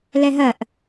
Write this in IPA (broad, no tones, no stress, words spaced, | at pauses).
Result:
lɛɦɜʔ